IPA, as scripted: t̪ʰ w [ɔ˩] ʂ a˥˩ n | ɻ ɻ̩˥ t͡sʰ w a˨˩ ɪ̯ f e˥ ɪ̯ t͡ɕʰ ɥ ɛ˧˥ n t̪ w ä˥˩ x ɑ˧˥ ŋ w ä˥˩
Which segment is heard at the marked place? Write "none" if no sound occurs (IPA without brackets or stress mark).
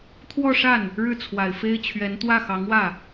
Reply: ɔ˥˧